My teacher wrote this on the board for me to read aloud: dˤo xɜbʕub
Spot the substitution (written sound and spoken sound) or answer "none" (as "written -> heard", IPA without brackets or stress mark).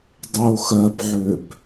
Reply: u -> ø